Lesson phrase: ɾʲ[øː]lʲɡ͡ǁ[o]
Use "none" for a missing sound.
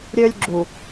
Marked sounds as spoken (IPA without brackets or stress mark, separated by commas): øː, u